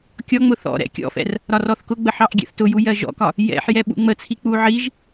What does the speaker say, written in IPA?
kʲ ɔ ŋ͡m ʊ θ ɔ̰ ɾ ɛ̰ kʲ ɔ̰ f ɛ̰ r | ɾ ɒ r ɔ θ k ʊ ɡ͡b ə ħ ɑ ʔ ɡʲ ɛ̰ θ t ʊ j u j ɜ ʒ ɔ̰ k ɒ | j ɛ̰ ħ j ɛ ɓ ṵ ŋ͡m ə t͡sʰ i k͡p u ʕ i ʒ

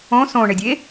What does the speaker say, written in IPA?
õ s õ ɳ e dʲ e

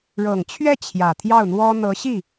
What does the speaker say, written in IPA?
ɻ ɤ˨˩ ŋ t͡ɕʰ ɥ ɛ˥˩ t͡ɕʰ j ä˨˩ t̪ʰ j ɑ˥˩ ʊ̯ n̪ w ɔ˥ n̪ ɤ˧˥ ɕ i˥˩

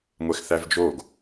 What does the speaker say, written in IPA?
ŋʷ ɛ x θ æ v d͡ʒ o ɡ

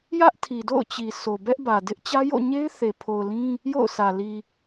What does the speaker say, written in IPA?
j ä˦ ʔ tʰ i˨ d o̰˦˨ ʊ̯ t͡ɕ i˨ s o˨ b ɛ˦ ʔ b ä˨ d ɪ˦ ʔ t͡ɕ ä˦ j o̰˦˨ ɲ e˦ ɪ̯ θ e˨ pʰ o˨ ʊ̯ l ĩ˦ | j o̰˦˨ ʊ̯ s ä˨ l i˨

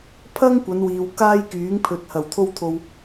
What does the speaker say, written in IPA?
pʰ ɐ˥ ŋ kʷ ɐ˨˧ n w iː˨ w k aː˥ j k yː˨˥ ŋ pʰ ɵ˨ t̚ h ɐ˨˩ w t̪ʰ o˥ w t̪ʰ o˧ w

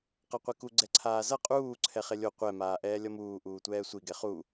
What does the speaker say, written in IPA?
q a qʷ e k u ɡ͡ǀ ɛ ǀʰ aː z ʌ qʼ uː ǀʰ ɛ χ e lʲ o qʷ ɛ m aː ʔ ɛː lʲ ʌ m uː ʔ uː tʷ ɛː sʷ i ɡ ɛ χ u

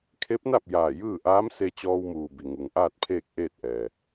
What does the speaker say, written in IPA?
kʰ e˧˥ p̚ n a˥˨ p̚ j aː˧˩ j ɯː˥˨ ʔ aː˧˥ m s e˧ t͡ɕ ɔː˧ w m uː˩ b i˩ ŋ u˩ ŋ ʔ aː˥˨ t̚ pʰ eː˥˨ k̚ ʔ eː˥˨ t̚ ʔ ɛː˩

